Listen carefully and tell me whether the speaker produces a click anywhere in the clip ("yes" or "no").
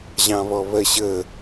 no